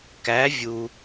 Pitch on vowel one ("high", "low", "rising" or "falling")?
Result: rising